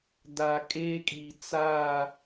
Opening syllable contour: low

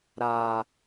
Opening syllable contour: low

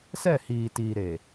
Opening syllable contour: falling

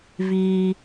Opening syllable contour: high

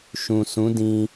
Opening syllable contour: low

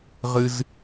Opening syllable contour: high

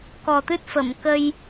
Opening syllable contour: low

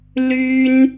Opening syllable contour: high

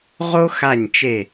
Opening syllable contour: high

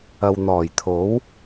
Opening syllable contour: low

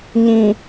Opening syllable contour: low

